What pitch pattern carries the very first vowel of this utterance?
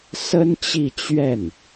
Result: high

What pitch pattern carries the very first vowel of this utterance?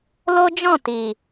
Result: high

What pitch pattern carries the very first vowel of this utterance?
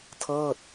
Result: falling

